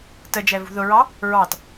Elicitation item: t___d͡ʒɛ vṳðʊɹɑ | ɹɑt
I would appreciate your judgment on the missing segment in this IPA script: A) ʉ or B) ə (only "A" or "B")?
B